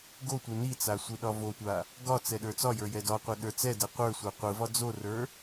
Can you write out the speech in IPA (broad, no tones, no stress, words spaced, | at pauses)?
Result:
ɡotʷɯ nit͡sa sʷɯɗɒvotʷa | ɡɒ t͡sɛɗə˞t͡sɒjə˞ jɛdɒqʷɛ ɗə˞t͡sɛdɛ qʷə˞sʷə˞ qʷɯvɒ d͡zorə˞